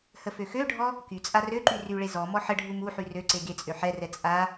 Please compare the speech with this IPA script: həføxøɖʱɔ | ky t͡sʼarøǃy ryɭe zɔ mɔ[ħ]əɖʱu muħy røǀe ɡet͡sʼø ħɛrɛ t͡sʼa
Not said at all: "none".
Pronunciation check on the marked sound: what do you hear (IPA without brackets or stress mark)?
ħ